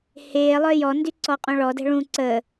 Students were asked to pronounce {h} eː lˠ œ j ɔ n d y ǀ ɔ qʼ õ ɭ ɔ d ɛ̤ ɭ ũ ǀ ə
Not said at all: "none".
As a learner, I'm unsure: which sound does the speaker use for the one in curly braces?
h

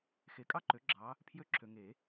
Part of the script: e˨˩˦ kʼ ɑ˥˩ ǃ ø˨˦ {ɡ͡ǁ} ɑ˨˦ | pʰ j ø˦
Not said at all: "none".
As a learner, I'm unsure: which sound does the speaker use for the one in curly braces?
ɡ͡ǁ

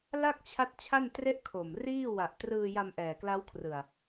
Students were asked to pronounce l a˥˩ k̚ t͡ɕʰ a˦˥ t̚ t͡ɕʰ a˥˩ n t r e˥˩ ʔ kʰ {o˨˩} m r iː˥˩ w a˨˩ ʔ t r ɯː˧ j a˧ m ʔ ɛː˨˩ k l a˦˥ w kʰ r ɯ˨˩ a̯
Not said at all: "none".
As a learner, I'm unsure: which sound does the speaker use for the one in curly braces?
o˨˩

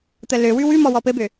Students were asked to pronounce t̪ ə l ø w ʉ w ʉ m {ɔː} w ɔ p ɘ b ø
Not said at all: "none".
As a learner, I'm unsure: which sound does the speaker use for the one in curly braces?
ɔ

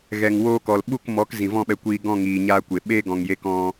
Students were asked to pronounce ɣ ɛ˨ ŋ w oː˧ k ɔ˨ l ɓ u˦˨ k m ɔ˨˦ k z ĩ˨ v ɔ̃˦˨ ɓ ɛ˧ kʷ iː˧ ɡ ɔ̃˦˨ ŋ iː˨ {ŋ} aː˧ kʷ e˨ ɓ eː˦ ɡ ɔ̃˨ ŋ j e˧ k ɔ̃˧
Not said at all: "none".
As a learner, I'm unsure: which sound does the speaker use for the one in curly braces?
ɲ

